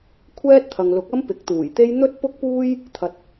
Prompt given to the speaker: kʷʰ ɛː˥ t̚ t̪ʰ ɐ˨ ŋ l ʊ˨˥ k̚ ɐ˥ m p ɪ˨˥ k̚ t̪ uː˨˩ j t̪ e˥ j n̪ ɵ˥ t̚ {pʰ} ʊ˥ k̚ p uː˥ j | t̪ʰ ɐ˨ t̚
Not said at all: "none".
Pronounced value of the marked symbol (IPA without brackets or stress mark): p